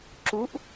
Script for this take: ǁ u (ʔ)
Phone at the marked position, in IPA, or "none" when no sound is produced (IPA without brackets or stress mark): ʔ